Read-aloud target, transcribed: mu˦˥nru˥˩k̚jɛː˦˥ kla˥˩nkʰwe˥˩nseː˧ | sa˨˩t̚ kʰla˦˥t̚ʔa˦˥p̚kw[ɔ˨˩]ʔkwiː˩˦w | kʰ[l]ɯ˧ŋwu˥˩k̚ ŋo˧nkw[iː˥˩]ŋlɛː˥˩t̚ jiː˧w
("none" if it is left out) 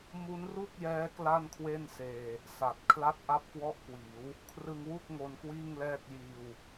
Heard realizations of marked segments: ɔ˦˥, r, iː˥˩

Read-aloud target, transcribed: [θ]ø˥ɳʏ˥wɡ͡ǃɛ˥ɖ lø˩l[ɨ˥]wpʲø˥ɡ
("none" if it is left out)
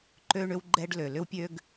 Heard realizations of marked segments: ǃ, ʏ˥

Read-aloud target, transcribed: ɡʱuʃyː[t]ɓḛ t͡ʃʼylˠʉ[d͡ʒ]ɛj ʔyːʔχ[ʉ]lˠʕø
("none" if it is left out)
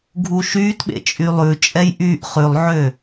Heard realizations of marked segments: t, t͡ʃʼ, ʉ

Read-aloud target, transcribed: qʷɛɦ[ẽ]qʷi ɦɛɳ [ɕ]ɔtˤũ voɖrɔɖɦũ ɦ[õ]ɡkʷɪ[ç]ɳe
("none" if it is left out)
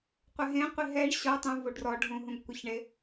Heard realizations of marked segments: ẽ, ɕ, ũ, ç

